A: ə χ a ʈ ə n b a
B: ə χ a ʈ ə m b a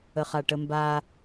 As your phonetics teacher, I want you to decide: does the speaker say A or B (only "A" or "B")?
B